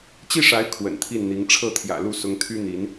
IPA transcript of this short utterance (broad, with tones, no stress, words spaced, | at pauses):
t͡ɕi˥˩ʂa˧˥ɪ̯ kʰwə̰˨˩nt̪ʰi˥˩nn̪i˧˥ŋ ʈ͡ʂʰɤ˥˩t̪ʰjä̰˨˩lu˥˩ sʊ˧˥ŋt̪ʰy˥n̪i˧˥n